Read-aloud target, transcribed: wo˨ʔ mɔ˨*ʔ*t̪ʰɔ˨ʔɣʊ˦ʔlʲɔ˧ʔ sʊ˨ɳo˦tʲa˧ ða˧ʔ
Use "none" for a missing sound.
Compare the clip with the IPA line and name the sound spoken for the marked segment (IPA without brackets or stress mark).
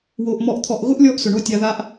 ʔ